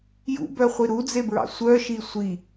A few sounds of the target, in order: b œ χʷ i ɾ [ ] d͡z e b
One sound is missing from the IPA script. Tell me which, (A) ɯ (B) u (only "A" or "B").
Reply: B